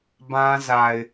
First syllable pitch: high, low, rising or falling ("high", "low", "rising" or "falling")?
high